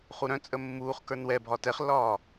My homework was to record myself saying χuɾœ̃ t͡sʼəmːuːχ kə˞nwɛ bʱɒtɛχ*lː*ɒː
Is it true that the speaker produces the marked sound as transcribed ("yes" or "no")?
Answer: yes